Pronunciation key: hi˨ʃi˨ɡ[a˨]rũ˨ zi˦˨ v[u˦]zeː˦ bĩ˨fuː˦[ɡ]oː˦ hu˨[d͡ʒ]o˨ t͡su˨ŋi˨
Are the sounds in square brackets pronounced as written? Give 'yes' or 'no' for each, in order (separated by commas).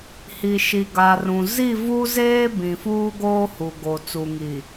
yes, yes, yes, no